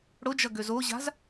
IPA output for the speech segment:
ɽ ʊ d͡ʒ ʌ ɡ ø z o ʑ a̤ z

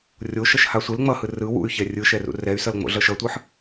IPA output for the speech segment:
rʲ o ʃ ʌ ʃ h a sʷ e l ŋ͡m ʌ h ɯ r ɯ w ṵ y̯ ç ɛ rʲ ɯ ʃ ɛ r ṵ r ɛ y̯ s ʌ l ŋ͡m o̰ ɮ ʌ ʃ ʌ tʷ ɯ ħ

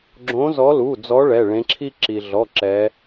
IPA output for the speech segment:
ɡ͡ǁ õ˨˦ z ɔ˨˦ l u˩˧˩ d͡z ɔ˨˦ ɭ ɛ˩˧˩ ɭ ẽ˨˦ ǁʰ i˥ ǁ i˩ ɮ ɔ˩˧˩ ǁ ɛ˨˦

